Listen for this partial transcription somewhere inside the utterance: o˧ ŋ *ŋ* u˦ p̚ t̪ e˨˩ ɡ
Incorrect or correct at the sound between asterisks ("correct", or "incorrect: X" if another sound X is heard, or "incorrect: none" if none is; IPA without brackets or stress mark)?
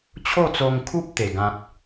incorrect: kʰ